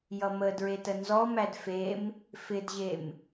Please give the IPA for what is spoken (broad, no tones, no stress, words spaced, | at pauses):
jʌmə dɹetənzɔmæd fem | fɪdʑem